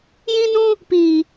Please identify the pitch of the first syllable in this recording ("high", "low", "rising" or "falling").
high